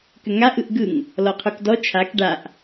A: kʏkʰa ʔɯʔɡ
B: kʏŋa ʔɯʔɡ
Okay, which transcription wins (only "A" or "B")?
B